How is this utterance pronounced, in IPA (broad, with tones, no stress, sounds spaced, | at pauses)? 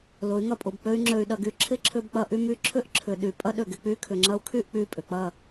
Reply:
l ʊ˨˦ y̯ ŋ ɐ˧ pʼ ʊ˨ b k͡p ø˦ y̯ ŋ͡ǁ ø˧ y̯ ɗ ɐ˧ ɡ y˧ ǁʰ ɪ˦ ǁʰ ʏ˧ b k͡p ɐ˧ ʔ y˧ m y˧ ǁʰ ʏ˦ ʔ ǁʰ ʏ˨ ɗ y˨ pʼ ɐ˦ ɗ ø˨ ɡ ɪ˧ k͡p y˦ kʰ ʏ˨ ŋ͡ǁ ɐ˧ u̯ kʰ y˦˨ ʔ k͡p y˧ pʼ ʏ˨ k͡p ɐ˦˨